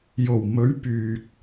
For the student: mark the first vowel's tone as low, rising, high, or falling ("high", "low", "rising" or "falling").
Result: low